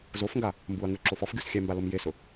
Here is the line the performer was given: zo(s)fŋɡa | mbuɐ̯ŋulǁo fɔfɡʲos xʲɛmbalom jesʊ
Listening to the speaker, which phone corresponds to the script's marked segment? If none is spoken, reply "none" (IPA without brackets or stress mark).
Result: none